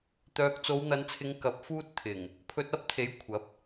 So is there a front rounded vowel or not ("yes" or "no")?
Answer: yes